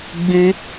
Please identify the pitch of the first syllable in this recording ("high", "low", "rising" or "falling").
high